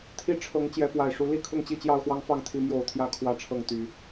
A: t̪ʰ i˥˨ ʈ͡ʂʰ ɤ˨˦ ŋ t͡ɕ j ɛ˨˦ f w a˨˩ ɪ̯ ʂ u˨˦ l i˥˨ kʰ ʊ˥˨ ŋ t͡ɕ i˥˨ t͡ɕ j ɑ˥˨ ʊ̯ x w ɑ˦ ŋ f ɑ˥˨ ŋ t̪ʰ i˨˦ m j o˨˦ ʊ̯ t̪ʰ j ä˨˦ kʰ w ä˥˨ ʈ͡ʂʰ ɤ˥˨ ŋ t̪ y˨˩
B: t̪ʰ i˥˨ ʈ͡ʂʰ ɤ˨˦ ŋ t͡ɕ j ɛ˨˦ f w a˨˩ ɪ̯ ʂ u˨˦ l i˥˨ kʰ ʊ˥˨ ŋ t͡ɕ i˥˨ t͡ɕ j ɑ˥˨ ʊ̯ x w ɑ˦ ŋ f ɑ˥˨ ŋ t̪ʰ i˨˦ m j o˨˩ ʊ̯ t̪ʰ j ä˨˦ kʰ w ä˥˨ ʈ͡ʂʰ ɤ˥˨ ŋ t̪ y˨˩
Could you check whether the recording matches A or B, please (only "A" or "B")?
B